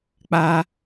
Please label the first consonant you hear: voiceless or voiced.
voiceless